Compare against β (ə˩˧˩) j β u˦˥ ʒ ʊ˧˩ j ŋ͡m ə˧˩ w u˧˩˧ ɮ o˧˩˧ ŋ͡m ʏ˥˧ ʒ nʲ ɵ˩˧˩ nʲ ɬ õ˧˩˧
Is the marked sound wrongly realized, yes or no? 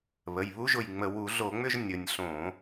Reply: no